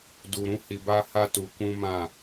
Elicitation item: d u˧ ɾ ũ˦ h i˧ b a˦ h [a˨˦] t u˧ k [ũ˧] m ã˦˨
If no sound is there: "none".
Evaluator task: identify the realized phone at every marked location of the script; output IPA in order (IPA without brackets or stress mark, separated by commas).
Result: a˦, ũ˦